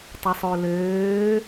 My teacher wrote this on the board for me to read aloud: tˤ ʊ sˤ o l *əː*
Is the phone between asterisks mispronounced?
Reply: yes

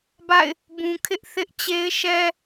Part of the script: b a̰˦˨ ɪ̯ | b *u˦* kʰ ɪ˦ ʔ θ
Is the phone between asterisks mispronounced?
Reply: yes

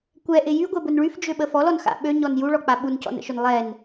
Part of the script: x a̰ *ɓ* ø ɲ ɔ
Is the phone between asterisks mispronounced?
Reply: no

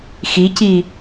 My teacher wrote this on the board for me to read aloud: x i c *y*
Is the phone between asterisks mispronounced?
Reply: yes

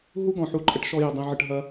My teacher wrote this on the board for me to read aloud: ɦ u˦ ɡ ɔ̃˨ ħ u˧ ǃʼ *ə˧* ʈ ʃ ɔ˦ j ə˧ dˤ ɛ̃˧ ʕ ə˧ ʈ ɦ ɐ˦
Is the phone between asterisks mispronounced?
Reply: no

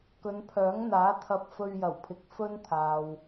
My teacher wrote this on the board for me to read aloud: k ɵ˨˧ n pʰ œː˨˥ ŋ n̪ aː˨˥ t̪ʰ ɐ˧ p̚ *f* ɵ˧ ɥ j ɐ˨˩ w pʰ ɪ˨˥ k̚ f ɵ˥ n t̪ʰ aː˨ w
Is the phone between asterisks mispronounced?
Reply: no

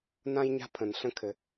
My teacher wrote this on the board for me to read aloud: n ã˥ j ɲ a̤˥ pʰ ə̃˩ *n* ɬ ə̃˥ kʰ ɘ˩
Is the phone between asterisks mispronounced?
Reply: no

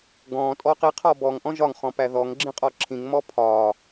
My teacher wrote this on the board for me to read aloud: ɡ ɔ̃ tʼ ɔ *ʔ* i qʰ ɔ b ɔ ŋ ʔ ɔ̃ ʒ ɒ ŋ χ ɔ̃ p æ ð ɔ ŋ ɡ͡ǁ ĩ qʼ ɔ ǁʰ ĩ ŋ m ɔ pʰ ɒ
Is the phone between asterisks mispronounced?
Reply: yes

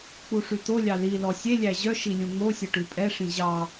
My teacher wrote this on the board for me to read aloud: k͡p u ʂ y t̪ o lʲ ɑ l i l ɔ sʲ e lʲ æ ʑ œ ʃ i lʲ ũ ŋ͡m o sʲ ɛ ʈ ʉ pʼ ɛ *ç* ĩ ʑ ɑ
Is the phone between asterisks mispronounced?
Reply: yes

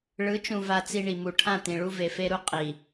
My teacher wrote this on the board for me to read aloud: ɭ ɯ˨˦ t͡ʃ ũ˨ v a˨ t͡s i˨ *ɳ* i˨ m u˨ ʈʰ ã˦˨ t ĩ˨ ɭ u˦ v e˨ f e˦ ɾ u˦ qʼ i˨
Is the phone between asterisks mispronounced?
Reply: no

